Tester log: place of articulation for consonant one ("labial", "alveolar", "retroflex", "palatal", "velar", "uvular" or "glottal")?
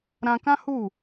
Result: alveolar